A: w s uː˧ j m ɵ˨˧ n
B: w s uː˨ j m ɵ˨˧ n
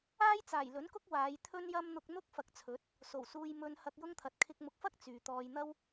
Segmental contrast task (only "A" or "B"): A